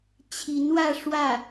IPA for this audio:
t͡ɕʰ i˧˥ n w ä˥˧ ʂ w ä˥˩

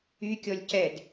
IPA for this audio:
y kʲ ɔ lʲ c ɛ d

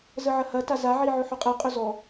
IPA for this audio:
z ə ʕ ɐ h ɐ t a z a ʕ i ʕ ɵ ħ ɵ qʼ ɛ qʼ ɵ z ɔ

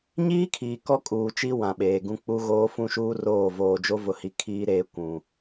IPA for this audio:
ɲ iː˦ kʰ iː˨ k ɔ˦ kʼ uː˨ t͡ʃ i˦ w ã˨ ɓ eː˨ ɡ ũ˦ k͡p u˦ ɣ oː˦ f ũ˦ ʃ uː˦ r oː˦˨ v oː˨ d͡ʒ o˦ v ʊ˨ h i˨ kʰ iː˦ ɾ eː˦ kʷ ũ˨

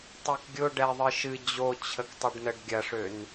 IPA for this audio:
tˤ ø k ɡʲ ʊ ɖ ɛ ðˤ ɨ ʃ ɨ d͡ʑ o t͡ɕʰ ə k tˤ ʊ ɖ n ə ɖ ɡʲ ɐ ʂ ø n

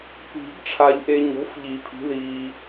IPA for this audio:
p i̤˨˩˦ ɡ ʈ͡ʂʰ a˨ ʎ ʔ e˨ ɲ o̤˩˥ f ʎ i˨˩˦ pʰ i̤˩˥ ð iː˨

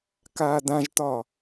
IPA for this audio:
k aː d ã ʒ t ɒ

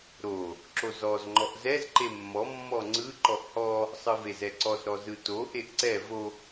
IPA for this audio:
ɾ o | ǁ o z ɔ z ŋ͡ǃ ɔ ʔ z ɛ z ǃ e mː ɔ mː ɔ ŋ͡ǀ ɯ ǃ ɔ ʔ h ɔ | sˤ ɯ v e z ɛ ǀ ɔ z ɾ ɔ z ɯ t o ʔ e ʔ ǀ ɛ v o

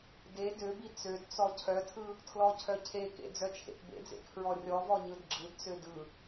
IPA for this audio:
d e d ø b i t͡s ø d t͡s ɔ cʰ œ tʰ ɯ | tʰ l ɔ cʰ œ cʰ e k ḛ d͡z œ t͡ʃʰ ḛ t b ḛ d͡z ḛ kʰ ɹ ɔ rʲ ɔ v ɔ ɲ ɯ d ɡ͡ǁ ɯ d t͡s ø d ɯ

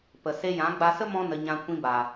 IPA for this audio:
p ə˨ s e˧ j ã˨˦ ɡ͡b a˧ s ə˦ m ɔ̃˧ n ə˨ ɲ ã˧ kʷ ĩ˧ b a˨

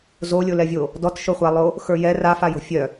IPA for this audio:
z o lʲ o l ɛ vʲ o | d ɔ t ʃ o χʷ a lˠ o | x ə˞ j ɛ r a f a j o̤ fʲ œ

